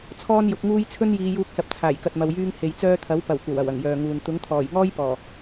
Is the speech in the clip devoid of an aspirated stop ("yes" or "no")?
no